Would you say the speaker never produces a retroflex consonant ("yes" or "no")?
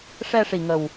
no